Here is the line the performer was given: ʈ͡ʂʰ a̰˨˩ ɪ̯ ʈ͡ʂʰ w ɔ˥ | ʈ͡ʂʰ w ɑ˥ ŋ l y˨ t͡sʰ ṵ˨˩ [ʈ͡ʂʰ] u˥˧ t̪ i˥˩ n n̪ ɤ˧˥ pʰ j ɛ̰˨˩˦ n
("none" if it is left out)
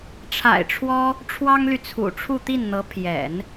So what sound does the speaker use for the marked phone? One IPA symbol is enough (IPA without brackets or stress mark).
ʈ͡ʂʰ